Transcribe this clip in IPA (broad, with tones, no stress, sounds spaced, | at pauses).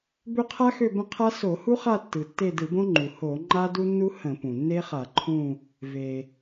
b ø˦˨ qʰ a˦˥ x ø˦˨ b ə̃˦˨ qʰ a˦˥ s o˧˩˧ h u˦˥ χ a˦˨ tː ɯ˩ tː e˦˨ d ɯ˧˩˧ b õ˦˥ ŋ͡ǃ u˩ h o˧˩˧ ŋ͡ǃ a˦˥ d u˦˥ nː u˦˥ h ə̃˧˩˧ p ũ˩ nː e˦˥ χ a˧˩˧ ǃʰ ũ˦˨ | v e˩